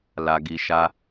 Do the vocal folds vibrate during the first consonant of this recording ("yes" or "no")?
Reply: yes